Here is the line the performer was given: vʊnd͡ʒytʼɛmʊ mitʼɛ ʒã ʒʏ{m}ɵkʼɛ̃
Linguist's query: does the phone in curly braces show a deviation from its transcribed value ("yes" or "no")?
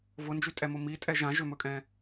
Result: no